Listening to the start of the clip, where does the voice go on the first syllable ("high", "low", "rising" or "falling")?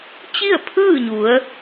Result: falling